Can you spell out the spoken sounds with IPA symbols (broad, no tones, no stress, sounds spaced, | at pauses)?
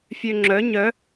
fʲ ø ŋ͡ǁ œ ɲ œ